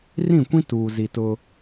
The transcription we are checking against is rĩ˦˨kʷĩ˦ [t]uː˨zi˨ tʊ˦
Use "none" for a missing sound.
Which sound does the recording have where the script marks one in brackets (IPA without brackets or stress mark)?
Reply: t